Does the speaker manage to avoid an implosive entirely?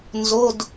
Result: yes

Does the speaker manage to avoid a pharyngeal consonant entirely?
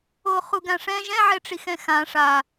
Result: no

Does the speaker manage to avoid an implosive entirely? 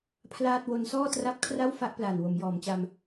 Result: yes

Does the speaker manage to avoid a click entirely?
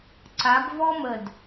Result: no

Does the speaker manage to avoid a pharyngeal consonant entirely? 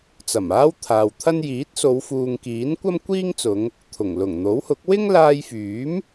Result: yes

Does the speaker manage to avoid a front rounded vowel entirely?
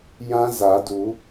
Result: yes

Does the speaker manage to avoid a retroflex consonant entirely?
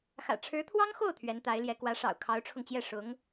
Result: no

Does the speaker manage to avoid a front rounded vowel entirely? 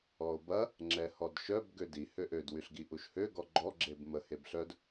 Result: no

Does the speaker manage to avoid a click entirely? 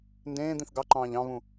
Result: no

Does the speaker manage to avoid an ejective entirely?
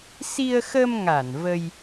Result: yes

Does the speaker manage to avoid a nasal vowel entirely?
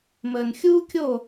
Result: yes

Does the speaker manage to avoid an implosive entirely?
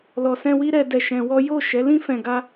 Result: yes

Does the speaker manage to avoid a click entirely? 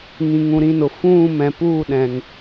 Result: yes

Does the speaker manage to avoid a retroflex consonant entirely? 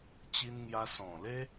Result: yes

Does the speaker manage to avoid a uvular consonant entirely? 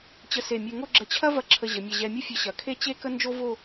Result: yes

